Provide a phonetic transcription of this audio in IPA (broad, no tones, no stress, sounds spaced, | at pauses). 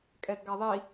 kʼ ɛ d ɡ a ðˤ i